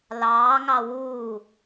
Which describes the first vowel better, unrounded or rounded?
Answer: unrounded